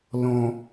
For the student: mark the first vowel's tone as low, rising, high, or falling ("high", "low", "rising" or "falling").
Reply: low